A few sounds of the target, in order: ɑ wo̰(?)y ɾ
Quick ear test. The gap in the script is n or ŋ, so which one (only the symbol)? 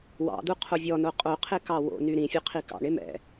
n